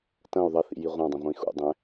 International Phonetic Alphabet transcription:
tɐ̃u̯ ðˤɐθḭji ʁʷãdˤɐ̃ʁʷĩ xṵdˤɛ̃

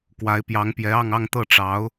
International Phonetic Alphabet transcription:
kwa˧˥ɪ̯pjɑ˧˥ŋpjɛ˧˥ɑ˥˧ŋ ɑ˥˧ŋt̪ɤ˥˩ʈ͡ʂɑ˧˥ʊ̯

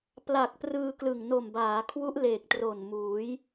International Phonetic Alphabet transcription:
pla˨˩k̚ prɯː˧ klɯ˨˩ŋno˨˩mbaː˩˦kʰwu˦˥ʔ leː˨˩k̚tro˨˩n muː˩˦j

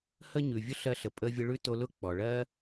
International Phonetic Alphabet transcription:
hə˥ɲʉ˩vʲʊ˥ ɬɜ˧ɬə˩ pʼə˧ vʲə˧ɭʉ˥to˧lʊ˥ k͡pɔ˩ɭɜ˥

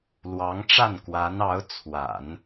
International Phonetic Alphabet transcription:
lwɑ˧˥ŋʈ͡ʂa˥˩nkwa˧˥n ɑ˧˥ʊ̯t͡sʰwa̰˨˩˦n

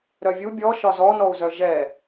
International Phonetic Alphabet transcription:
ɾœvʲu bʲɔ ʃɒzɔnɔu̯zœ ʒɛ

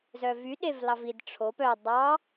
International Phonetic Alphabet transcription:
zœvy ɗevlɑvid ʈ͡ʂʰop œ dˤɑ

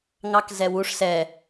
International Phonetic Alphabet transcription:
ŋɑkzɛwuʂ sɛ

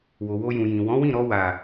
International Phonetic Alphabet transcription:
wo˨wo˧jũ˨jĩ˨ wɔ̃˨˦wĩ˦˨ɾɔ˧ wa˨

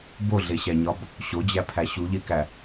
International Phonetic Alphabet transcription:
boɮeɕæɲɒb | ɕod͡ʑæpʰæ ɕuʎekæ

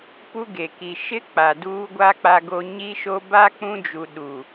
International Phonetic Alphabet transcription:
pu˦ɡe˨ ki˨ʃɪ˦ k͡pa˨duː˦ɡʷa˦ k͡pa˦ɡo˦ ɲi˦ʃo˦ ba˦ k͡pũ˦d͡ʒu˨ ɗu˨

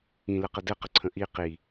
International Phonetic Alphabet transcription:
ĩləqə dɘqəǀʰə̃ ʔi qi

